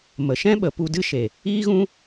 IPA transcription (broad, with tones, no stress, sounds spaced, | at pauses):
m ə˨ ʃ ɛ̃˦ ɓ ə˨ p u˧ d ɨ˦ ʃ e˨ | iː˦ ɣ ũ˦